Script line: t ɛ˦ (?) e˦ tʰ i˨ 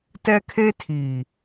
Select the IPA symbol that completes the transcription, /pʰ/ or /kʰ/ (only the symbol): kʰ